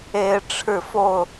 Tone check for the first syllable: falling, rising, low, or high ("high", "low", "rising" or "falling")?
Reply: high